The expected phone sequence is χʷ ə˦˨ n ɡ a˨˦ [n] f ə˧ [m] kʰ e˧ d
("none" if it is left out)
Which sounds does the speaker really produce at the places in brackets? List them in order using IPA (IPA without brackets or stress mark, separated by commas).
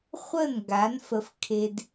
n, f